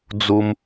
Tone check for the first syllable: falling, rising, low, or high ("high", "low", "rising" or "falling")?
high